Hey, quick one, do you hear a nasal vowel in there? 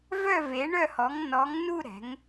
no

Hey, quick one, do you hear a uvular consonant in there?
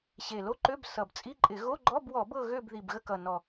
no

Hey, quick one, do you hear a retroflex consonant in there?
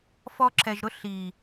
no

